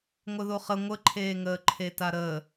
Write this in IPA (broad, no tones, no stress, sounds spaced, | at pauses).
ŋʷ ə ð o χ ə ŋʷ ə ǃʰ eː ŋ əː ǃʰ e t a ɾ əː